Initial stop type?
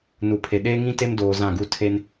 aspirated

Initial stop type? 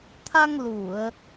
aspirated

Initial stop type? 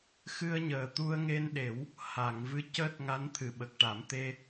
plain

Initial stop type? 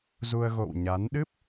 implosive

